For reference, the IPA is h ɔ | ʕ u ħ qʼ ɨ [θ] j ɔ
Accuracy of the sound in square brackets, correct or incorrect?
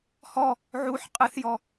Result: correct